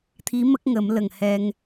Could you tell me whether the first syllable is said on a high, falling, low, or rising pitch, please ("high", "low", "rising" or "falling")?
rising